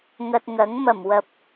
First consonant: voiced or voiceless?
voiced